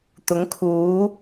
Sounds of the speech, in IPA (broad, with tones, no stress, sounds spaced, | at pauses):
t̪ ʊ˨˥ ŋ kʰ uː˨˥